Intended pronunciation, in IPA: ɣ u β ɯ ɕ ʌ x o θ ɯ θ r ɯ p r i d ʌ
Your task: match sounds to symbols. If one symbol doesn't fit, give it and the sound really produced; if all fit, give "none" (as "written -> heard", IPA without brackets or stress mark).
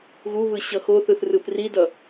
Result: none